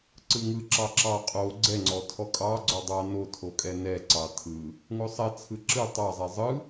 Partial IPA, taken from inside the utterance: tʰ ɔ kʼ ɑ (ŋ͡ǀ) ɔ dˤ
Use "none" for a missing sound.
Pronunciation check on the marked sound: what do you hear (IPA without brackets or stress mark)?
ɡ͡ǀ